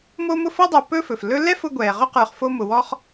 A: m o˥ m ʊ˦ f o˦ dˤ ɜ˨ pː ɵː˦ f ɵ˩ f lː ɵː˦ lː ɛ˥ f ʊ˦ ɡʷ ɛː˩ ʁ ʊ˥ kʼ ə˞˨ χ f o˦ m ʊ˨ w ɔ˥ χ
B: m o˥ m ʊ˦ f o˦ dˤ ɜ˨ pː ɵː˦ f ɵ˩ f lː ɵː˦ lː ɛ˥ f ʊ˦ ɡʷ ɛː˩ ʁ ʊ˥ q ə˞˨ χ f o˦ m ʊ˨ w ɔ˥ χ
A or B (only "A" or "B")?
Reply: B